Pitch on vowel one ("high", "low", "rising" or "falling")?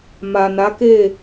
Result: low